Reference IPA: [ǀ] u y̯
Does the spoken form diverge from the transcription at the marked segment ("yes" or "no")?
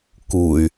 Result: yes